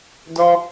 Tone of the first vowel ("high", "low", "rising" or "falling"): high